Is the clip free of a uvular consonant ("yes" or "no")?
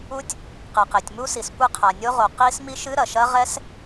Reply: no